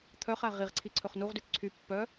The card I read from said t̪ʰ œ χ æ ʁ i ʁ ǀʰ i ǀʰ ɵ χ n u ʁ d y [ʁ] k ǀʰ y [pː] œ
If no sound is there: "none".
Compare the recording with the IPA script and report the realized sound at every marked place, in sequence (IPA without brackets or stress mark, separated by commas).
none, pː